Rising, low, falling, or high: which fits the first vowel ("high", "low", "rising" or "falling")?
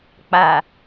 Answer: low